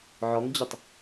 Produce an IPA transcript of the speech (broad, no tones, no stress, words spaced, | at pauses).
ʕɔŋd͡ʑətˤ